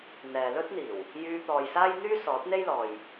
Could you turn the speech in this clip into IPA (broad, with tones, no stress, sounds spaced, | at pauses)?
n̪ ɛː˨ l ɵ˥ t̚ n̪ iː˨˩ w | j yː˧ t̪ ɔː˨ j s aː˥ j n̪ yː˥ s ɔː˨˥ t̚ n̪ e˥ j l ɔː˨ j